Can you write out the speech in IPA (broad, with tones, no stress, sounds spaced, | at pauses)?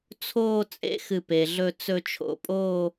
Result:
t͡sʰ oː˥˧ t͡sʼ ḛ˥ x ɨ˧˩ p e˩ ɮ ɵ˧ t͡s ɵ˧ t͡ʃʰ o̰˧˩ pʼ oː˥˧